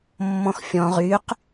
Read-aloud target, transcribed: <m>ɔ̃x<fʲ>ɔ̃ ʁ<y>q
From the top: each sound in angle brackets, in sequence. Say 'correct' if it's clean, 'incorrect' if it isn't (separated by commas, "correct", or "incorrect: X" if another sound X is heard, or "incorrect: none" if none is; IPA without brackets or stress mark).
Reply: incorrect: mː, correct, correct